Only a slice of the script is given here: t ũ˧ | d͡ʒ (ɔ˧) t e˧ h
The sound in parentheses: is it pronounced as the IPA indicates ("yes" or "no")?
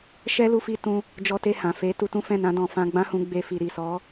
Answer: yes